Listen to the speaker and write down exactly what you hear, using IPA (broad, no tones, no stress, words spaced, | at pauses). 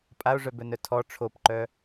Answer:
pʼao̯ʐœbœnœ tʰɔ ʈ͡ʂʰopǃœ